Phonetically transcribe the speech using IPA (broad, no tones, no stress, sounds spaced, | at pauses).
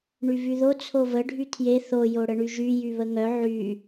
ɳ y v y ð o t͡sʰ o v ə ɖʱ y tʰ j e θ o j o ɽ ə ɳ y ʒ y j y β ə ŋ œ ʕ y